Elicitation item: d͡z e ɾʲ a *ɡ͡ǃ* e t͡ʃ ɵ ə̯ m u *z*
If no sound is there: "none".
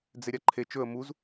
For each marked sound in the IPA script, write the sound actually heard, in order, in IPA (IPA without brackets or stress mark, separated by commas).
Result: ǃʰ, z